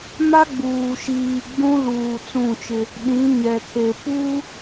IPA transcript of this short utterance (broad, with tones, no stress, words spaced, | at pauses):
ma˦ɡ͡buː˨ʃiː˨ ɡ͡bũ˦luː˨ t͡sũ˦˨t͡ʃɪ˦ | ɗĩ˨˦ɲɛ˨kʰe˨ pu˦